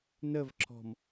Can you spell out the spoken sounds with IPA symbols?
n ə v ǁ ɔ̤ m

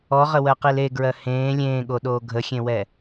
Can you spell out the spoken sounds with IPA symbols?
ɔ ʁ ə w ɜ q i l e ɡ ɹ ɜ h ẽː lʲ ẽː ɠ o ɗ oː ɡʱ ə xʲ ẽ w ɛ

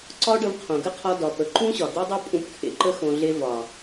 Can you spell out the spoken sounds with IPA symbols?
ǀ ɒ˦ ɖ ə˧ v qʰ õ˨ ɡ ə˦ qʰ ɒ˧ d ɒ˨ p ə˨ ǃ ũ˦ ɕ ɒ˨ d̪ e˦ dˤ o˦ pʼ ũ˧ p kʰ ḛ˨ ǃ ə˧ x õ˨ ɮ e˧ v ɒ˨

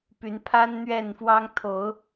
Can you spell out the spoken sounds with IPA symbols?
p y˨˦ n pʰ a˦ n n̪ ɥ ɛ˥˨ n f w ɑ˦ ŋ t̪ʰ o˨˦ ʊ̯

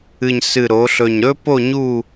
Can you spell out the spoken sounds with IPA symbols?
ɨ˨˩ ɲ s ɨ˨˩ ɾ o˩˧ ɬ ɵ˨˩ ɲ ɾ ɵ˥ p o˥˧ ɲ u˥˧

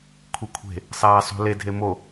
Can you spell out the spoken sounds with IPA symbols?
kʷʰ i kʷʰ e̤ | sˤ ɛː sˤ ṳ l e dʱ e m o

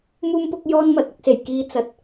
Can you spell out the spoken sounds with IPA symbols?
m uː˥ m p ʊ˥ k̚ j ɔː˥ n m ɐ˨ t̚ ʊ˨˥ k̚ s e˨˩ j k iː˧ t͡s ɐ˨ t̚

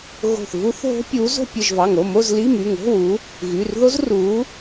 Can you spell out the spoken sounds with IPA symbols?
ɣ o̤˧˩ θ v u˦˥ θ ɦ o̤˦˥ pʲ u˨˦ z o̤˥˧ pʲ ɯ˧˩ ʒ v ɑ˩˧˩ ŋ o˩˧˩ m o˥˧ z l i˧˥˧ m y˩˧˩ ŋ o̤˧˥˧ w u˨˦ | ɣ y˩˧˩ r ð o˦˥ z r u˨˦

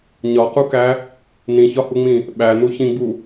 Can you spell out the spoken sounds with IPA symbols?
ɲ ɒ q u k æ | n ĩ ç ɒ h u ŋ͡m ĩ | ɓ æ n u ç ĩ ɡ͡b u

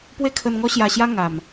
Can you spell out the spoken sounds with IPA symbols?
p w e˦ kʰ ə˧ n ŋ ɔ˦ ɕ j a˧ ɕ j a˦ ŋ a˨˩ m

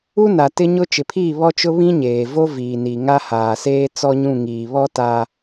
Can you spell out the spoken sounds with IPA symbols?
u˦ n a˨ t ɪ˦ ɲ ʊ˦ t͡ʃ ɪ˨ pʰ iː˦˨ β ɔ˦ t͡ʃ ʊ˦ β ĩ˦ ɲ eː˨ v o˦ v iː˨ n i˨ ŋ a˦ h aː˨ s eː˦ t͡s ɔ˦ ɲ ũ˦˨ ŋ iː˨ β ɔ˦ t a˦

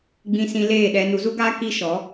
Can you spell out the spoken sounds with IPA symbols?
ɡ͡b ĩ˧ s ĩ˧ l eː˦˨ ɗ ɛ˧ n u˨˦ z u˦ ɡ aː˦ k i˦ ʃ ɔ˨˦

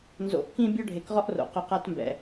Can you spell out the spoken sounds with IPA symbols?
n z o̰˨˦ ʔ k ĩ˦ bʲ ɔ˦ ɖʱ e˨ k ʁ ɔ˦ ʔ r o̰˨ q ʊ˧ q a˦ t m b ɛ̰˨

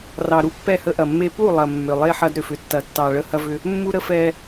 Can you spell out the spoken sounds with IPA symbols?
r ɑ˨ ɾ u˦ pː ɛ˦˨ h ə˦ ʔ ɐ˨ mː e˦ p u˦˨ lˠ ɐ˨ mː ʏ˨ lˠ e˦ ħ ɐ˦ d ɾ ʏ˨ f ʏ˨ tː ɐ˨ tː ɑ˨ ɭ ə˦ h ɐ˦ v ʏ˦ | mː u˦ ɾ ə˦ f ɛ˦

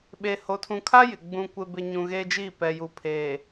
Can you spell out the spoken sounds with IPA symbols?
ɓ e˨ h o˨ tʰ ũ˨ kʰ a˦ j ɪ˨ ɡ͡b ũ˨ kʷ ɪ˨ b ɪ˨ ɲ ũ˨ ɣ eː˦ d͡ʒ iː˦˨ p ɛ˨ j u˨ pʰ eː˨

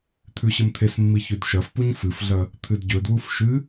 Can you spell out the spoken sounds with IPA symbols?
t̪ʰ ʉ ɕ ɨ m t̪ʰ e s mː i ç ʉ d ʃ ɐ f p u ɲ f ɨ f ɮ ɐ | t̪ʰ ɨ d ɟ ɵ d w u f ʃ ɨ

